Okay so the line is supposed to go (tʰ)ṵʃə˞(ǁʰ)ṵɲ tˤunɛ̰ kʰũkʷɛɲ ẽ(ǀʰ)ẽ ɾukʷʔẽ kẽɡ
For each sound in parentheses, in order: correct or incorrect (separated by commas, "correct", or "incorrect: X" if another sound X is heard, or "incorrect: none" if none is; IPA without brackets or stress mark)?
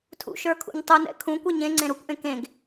correct, incorrect: kʰ, incorrect: ŋ͡ǀ